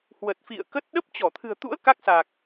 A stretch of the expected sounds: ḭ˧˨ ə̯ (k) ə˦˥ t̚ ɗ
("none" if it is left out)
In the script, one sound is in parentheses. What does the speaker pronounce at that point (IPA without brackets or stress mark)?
k